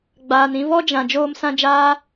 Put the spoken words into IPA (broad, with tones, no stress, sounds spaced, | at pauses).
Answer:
ɡ͡b aː˨ n ĩ˧ v ɔ˦ d͡ʒ ã˨ d͡ʒ oː˧ m s ã˧ d͡ʒ aː˧